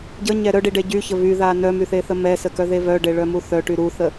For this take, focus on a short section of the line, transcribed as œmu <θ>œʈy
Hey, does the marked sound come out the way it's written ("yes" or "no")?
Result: yes